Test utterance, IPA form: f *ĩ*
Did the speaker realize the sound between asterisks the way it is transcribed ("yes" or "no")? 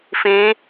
yes